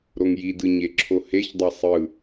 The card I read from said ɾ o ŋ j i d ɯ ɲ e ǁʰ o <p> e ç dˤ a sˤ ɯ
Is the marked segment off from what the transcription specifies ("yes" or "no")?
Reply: yes